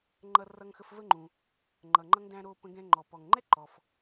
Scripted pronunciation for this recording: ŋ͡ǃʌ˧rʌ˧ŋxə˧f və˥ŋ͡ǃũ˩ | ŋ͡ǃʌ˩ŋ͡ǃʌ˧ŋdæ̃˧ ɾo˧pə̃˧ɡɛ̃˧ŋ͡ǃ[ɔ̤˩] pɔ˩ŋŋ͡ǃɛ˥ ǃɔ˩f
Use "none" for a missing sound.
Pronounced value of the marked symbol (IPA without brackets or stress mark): ɔ˩